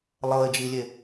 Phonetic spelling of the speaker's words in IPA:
lˠɤɪ̯d͡ʒilʲe

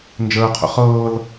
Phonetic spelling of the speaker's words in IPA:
nd͡ʒəːqʰə̰ χɤːl

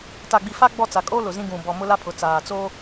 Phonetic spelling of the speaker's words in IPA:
ta˨ɡ͡bi˨fa˦ ɡ͡bɔ˦˨t͡sa˨kʼoː˦ lʊ˨zĩ˦ɡũ˨ bɔ˨mʊ˦ la˦pʰʊ˨t͡saː˨ t͡soː˦

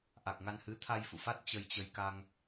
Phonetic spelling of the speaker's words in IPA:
ʔa˨˩k̚ŋa˧nhɨ˨˦ t̪ʰa˧jfṵ˧˨fa˦˥t̚ t͡ɕə˧jt͡ɕə˧j ka˧ŋ

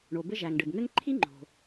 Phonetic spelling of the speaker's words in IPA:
ɳo˩bɘ˥ ʒæ˩ŋɖɘ˩bŋɘ˥ŋ ǃʰi˥ŋ͡ǃo̤˩

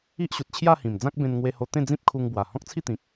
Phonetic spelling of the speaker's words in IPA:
i˦ʔɕu˨t̚t͡ɕʰja˥˧hĩ˨˩m d͡zã˦k̚bẽ˧nŋwe˧ ho˧t̪ẽ˥˧ d͡zĩ˦p̚kʰu˧ŋbwa˨˩ hɔ̃˦k̚t͡sʰi˥˧t̪ĩ˨k̚

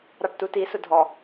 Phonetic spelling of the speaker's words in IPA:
ɾɑʈtuti sʊdʱɔ

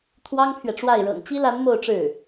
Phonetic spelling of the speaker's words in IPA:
t̪ʰwɑ˥ŋpʰɥɛ˨ʈ͡ʂwa˥˩ɪ̯ ɻɤ̰˨˩ŋt͡ɕi˥la˧˥n mo˥˧ʊ̯ʈ͡ʂɻ̩˥˩

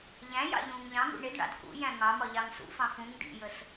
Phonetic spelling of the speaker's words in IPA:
ʎæ̃jɑ̰ ʎũːŋʎɑ̃ŋṵ ɳɪdɳɑ̰d kṵ jæ̃ŋɑmɒ ʎɑŋsṵfɑ̃ fũŋ dḭjəs

